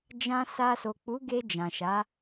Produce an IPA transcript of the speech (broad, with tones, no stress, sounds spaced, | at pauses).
d͡ʒ ã˧ s a˧ s o˨ k͡p u˨˦ ɡ e˧ d͡ʒ ã˨ ʃ a˨˦